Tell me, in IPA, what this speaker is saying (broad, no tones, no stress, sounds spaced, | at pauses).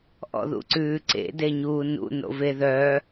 ʔ ɔ̰ ð ṵ ǀ ʉː ǀ ḛ d e ɲ uː n ṵ n o̰ v e ð œː